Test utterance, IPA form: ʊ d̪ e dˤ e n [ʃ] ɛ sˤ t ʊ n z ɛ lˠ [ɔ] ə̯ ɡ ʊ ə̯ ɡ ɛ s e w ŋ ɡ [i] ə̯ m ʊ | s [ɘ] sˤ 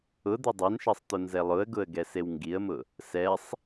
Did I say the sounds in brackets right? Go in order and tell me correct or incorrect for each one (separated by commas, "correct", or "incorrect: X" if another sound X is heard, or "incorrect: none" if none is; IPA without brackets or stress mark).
correct, incorrect: ʊ, correct, incorrect: ɛ